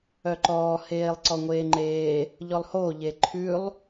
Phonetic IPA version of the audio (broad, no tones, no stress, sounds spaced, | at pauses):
œ ǃ ɔː h eː lˠ ǀ ɔ ŋʷ eː ŋ͡ǃ eː | ʎ ɔ lˠ h oː ʎ e ǃʰ ʉ lˠ